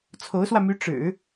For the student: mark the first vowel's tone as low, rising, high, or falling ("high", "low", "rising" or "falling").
rising